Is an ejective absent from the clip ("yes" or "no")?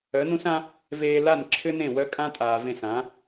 no